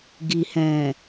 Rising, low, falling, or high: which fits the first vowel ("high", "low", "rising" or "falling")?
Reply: low